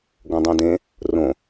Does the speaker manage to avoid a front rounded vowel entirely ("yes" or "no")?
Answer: yes